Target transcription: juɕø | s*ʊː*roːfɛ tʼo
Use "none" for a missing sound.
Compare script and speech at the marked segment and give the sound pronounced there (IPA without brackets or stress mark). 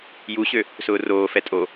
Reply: ʊː